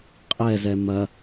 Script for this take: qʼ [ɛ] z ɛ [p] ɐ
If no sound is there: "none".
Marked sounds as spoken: ɛ, m

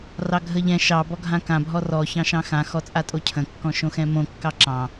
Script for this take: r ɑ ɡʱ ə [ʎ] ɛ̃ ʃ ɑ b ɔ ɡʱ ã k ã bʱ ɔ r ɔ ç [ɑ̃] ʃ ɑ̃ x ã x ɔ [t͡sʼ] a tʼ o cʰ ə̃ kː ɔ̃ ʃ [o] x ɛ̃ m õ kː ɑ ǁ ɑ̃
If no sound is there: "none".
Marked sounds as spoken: ʎ, ɑ̃, t͡sʼ, õ

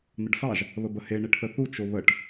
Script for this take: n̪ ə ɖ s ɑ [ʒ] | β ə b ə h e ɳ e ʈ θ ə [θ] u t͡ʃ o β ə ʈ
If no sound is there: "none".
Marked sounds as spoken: ʒ, θ

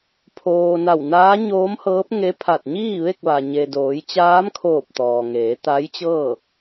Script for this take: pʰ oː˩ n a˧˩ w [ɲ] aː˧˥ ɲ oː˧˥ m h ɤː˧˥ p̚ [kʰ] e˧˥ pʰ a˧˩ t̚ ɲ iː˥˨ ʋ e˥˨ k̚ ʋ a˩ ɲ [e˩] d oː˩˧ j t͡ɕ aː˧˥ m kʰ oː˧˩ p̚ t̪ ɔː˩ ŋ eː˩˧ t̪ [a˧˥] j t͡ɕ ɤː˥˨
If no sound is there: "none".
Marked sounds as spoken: n, ŋ, e˩, a˧˥

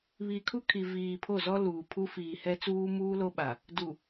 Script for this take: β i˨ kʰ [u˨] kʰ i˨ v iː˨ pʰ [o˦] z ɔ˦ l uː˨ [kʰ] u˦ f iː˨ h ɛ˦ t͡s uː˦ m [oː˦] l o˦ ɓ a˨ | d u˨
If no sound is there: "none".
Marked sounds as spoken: u˦, o˦˨, pʰ, uː˦

